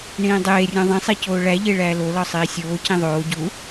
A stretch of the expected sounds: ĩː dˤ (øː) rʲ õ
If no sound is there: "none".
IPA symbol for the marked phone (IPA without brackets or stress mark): eː